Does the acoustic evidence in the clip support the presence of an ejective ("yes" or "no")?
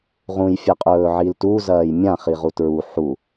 yes